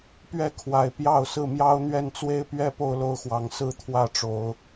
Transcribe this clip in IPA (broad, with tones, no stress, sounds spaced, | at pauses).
p ɥ ɛ˥˨ kʰ w a˨˩ ɪ̯ p j ɑ˥˨ ʊ̯ s ɹ̩˥˨ m j ɑ˦ ʊ̯ n̪ ɥ ɛ˥˨ n t͡s w e˦ ɪ̯ p ɥ ɛ˦ p o˦ ʊ̯ l o˦ ʊ̯ x w ɑ˨˦ ŋ s ɹ̩˥˨ t̪ʰ w ä˥˨ ʈ͡ʂ o˨˦ ʊ̯